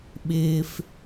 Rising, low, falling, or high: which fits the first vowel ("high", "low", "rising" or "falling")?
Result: low